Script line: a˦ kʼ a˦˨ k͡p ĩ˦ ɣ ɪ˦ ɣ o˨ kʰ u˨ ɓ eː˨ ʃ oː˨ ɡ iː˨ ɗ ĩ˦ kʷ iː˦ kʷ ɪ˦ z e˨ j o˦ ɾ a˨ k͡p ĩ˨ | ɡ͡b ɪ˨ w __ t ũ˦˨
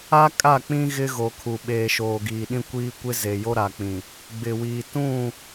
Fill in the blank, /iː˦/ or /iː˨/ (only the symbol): iː˨